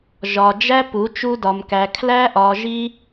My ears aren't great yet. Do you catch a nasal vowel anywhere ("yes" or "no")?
no